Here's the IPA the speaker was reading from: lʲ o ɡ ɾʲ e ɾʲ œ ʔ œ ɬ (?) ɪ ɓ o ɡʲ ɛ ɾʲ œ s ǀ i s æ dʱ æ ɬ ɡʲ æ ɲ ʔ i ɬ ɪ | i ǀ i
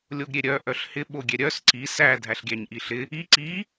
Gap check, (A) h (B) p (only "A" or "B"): A